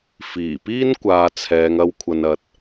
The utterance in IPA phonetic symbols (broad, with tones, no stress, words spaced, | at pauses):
fiː˨˩piː˥nkʷaː˨ t͡sʰɛː˨˧ŋ ɐ˧wkʷʰɐ˨nɐ˨t̚